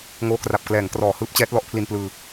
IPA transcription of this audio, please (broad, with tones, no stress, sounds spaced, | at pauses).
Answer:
ŋ oː˧ k r a˨˩ p̚ k l ɛː˩˦ ŋ k r ɔː˩˦ h ɯː˦˥ p̚ t͡ɕ ɛː˦˥ t̚ l ɔ˦˥ ʔ pʰ l i˧ n p l ɯː˧